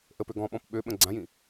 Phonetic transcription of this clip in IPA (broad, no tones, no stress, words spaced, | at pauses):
ʔəpø ɡɔ̃ɓɔ̃p ɓøɓə̃ ɡ͡ǀãjĩ